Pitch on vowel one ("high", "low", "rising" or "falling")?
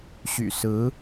low